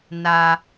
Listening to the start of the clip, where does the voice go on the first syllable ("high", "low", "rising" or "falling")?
high